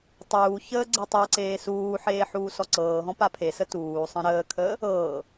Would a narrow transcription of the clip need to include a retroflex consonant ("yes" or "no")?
no